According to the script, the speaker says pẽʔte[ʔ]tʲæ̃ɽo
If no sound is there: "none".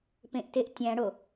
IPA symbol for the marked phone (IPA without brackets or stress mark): ʔ